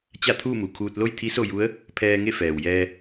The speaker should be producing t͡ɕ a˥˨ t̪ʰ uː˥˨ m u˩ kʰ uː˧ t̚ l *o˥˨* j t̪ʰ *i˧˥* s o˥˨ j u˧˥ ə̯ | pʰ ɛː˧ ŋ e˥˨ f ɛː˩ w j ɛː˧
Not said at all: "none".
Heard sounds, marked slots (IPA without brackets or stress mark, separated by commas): o˥˨, i˧˥